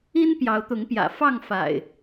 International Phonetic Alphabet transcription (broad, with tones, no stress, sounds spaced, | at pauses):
i˦ n p j ɑ˨˦ ʊ̯ t̪ ʊ˨˦ ŋ p j ä̰˨˩ f ɑ˥˨ ŋ f a̰˨˩ ɪ̯